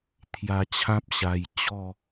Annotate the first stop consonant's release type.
aspirated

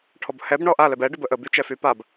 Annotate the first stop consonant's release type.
aspirated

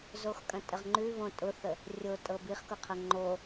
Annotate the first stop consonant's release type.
ejective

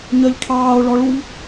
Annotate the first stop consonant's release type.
aspirated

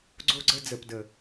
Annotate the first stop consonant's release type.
click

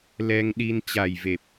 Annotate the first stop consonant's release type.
implosive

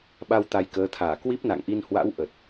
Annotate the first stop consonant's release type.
implosive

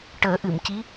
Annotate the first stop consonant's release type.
plain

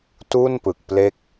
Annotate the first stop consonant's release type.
plain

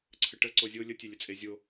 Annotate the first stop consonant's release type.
click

